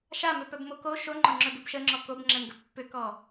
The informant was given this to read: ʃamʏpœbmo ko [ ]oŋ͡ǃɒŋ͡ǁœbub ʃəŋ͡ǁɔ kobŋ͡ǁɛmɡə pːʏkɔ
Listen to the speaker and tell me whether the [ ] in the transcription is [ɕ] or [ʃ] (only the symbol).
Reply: ʃ